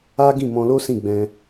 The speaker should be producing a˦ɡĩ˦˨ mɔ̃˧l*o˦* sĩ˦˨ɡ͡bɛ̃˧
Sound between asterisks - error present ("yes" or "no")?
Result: no